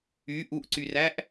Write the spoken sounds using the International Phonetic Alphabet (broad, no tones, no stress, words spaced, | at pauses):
y ʔuʔǀyræʔ